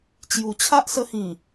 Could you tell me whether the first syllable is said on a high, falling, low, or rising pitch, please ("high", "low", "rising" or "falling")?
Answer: low